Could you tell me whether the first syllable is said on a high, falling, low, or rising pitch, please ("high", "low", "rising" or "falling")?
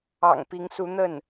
low